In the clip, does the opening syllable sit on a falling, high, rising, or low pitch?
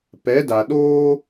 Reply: rising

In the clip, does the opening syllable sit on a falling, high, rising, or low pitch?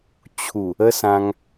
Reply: low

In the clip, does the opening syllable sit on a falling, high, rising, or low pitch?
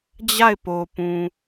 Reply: falling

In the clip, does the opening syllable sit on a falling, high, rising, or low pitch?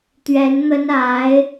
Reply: rising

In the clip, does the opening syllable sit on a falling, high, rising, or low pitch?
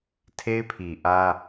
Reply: high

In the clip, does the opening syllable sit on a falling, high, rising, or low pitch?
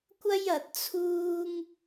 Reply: high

